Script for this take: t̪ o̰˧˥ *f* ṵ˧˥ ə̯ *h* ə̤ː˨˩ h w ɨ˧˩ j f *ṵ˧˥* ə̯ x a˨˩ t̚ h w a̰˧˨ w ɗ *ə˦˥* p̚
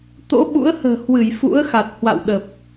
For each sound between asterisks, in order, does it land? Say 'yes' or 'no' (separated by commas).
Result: no, yes, yes, no